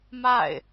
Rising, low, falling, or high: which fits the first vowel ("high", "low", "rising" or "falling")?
falling